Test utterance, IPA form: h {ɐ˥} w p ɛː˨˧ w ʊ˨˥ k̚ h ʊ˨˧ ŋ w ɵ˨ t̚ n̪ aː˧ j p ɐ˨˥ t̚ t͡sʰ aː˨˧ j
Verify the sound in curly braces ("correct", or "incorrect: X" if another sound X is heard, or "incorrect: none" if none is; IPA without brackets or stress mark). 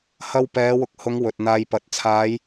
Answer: incorrect: ɐ˧